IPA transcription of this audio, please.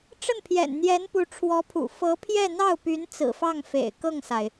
ʈ͡ʂ ə˥˩ n pʰ j ɛ̰˨˩ n n̪ j ɛ˧˥ n p u˧˥ ʈ͡ʂʰ w ɔ˧˥ pʰ ṵ˨˩ f ɤ˧˥ pʰ j ɛ˥˧ n̪ ɑ˥˩ ʊ̯ p y˧˥ n t͡s ɹ̩˨˩ f ɑ˥˩ ŋ f ḛ˨˩ ɪ̯ k ɤ˥˩ ŋ s a˩ ɪ̯

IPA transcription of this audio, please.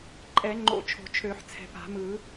ǃʼ ɛ˨˩˦ ŋ͡ǃ o̰˨˩˦ t͡ʃʰ o̤˨˩˦ t͡ʃʰ ø˨˩˦ ħ t͡sʰ ɛ̤˨ p a̤˨˩˦ m ɯ˨˩˦

